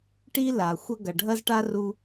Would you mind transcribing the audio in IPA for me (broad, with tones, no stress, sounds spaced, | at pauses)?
ʈ i˥ l a˩ xʷ ɐ˥ ɡ ɐ˩ ɖʱ ɐ˥ z ʈ a˥ r u˧